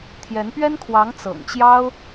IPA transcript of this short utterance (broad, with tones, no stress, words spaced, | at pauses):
t̪ʰjɛ˧˥npɥɛ˥nkʰwɑ˧˥ŋ t͡sɤ̰˨˩ŋt͡ɕjɑ˥ʊ̯